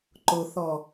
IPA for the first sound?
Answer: ǃ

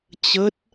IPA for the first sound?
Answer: t͡ɕ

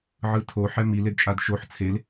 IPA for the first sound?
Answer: ʕ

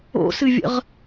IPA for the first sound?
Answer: o̰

